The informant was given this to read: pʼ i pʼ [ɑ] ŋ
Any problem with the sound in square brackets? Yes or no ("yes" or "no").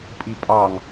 no